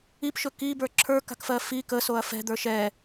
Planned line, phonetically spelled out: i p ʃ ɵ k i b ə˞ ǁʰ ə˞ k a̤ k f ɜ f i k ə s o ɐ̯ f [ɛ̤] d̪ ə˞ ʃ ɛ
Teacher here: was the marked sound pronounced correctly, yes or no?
yes